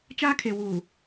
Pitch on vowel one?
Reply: high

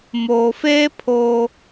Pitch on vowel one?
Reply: low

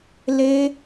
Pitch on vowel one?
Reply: high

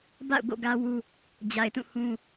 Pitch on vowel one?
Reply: falling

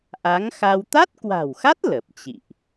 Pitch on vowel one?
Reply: rising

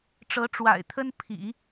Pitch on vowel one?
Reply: rising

